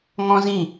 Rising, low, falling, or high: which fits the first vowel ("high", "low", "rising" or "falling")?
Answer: high